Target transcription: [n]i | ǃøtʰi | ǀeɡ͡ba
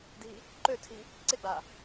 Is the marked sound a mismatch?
yes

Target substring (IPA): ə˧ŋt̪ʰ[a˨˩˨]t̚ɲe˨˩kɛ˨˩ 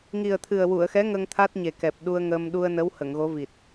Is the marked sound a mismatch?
yes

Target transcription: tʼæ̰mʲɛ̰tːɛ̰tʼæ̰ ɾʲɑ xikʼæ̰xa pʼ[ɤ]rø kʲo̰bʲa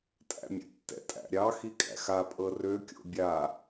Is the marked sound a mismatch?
no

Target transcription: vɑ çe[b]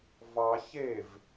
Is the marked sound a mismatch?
yes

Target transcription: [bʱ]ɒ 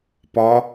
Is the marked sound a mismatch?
yes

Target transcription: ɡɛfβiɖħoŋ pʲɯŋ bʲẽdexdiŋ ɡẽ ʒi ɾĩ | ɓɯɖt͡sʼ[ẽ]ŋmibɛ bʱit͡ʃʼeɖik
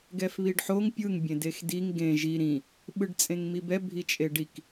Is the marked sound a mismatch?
no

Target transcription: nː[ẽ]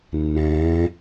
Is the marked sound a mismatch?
yes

